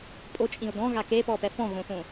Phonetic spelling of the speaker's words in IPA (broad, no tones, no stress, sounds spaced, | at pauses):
pʼ o t͡ʃʼ ĩ ʊ̯ ɡ ɔ̃ ɣ a k e p ɔ p ɛ f ɔ̃ ɣ õ θ õ